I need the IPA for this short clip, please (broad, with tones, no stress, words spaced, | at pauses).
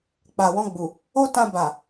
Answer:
k͡pa˨wɔ̃˧ɡ͡bu˨ | o˦tã˧ba˨